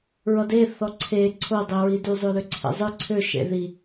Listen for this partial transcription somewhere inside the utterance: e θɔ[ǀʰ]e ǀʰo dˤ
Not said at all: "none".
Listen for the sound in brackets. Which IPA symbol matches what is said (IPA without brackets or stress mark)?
ǀʰ